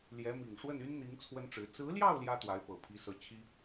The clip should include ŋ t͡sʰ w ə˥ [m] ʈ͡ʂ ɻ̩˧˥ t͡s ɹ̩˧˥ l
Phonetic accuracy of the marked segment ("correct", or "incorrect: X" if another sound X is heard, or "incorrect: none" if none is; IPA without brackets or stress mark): incorrect: n